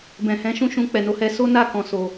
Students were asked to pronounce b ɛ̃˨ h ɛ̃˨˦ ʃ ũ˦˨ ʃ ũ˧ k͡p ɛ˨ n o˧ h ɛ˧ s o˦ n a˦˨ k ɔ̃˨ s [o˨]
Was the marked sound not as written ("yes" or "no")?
no